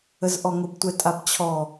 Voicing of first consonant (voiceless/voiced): voiced